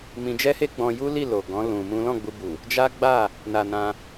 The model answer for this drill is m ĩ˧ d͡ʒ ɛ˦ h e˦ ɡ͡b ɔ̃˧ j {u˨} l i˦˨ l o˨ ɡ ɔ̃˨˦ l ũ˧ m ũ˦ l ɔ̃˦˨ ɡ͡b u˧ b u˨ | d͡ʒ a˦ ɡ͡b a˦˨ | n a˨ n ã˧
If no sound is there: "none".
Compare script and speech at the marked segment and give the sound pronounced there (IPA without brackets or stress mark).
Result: u˦